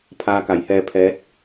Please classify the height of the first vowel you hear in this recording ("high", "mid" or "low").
low